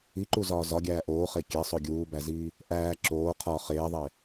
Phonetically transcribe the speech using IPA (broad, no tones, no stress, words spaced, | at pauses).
iǃuzɒː zɒɡʲæː ʔoːχe kʲesˤo ɡʲuːbæziː | ʔæː ǁoː qʰɒ χeːðˤe